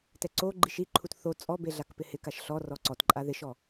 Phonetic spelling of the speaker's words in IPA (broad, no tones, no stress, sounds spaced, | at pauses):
t ɛ ǀ o ɡ͡ǃ i ʃ i ǃʰ u t θ o t͡sʼ ɔ b e ɮ a k p ɪ h ɪ k a ʃ ɬ ɔ r ɔ ǀ ɔ t ǃʼ a ð ɪ ʃ ɔ